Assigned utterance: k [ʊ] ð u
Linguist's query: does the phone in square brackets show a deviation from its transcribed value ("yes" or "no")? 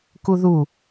yes